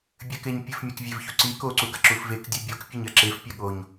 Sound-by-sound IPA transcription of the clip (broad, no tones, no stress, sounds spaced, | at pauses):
bʲ ɘ k e ɲ pʲ ɘ f mʲ a k vʲ e v ç u ǀ i k o ǀ u ɡ ɐ ǁ u f v e k dʲ u bʲ o k pʲ ɘ ɲ ɐ ǁ e f pʲ ɐ ɠ o ɲ